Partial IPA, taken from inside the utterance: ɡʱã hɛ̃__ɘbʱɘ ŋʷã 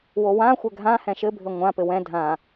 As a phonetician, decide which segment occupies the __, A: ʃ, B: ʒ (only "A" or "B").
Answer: A